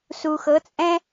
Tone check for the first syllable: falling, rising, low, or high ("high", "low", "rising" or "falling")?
low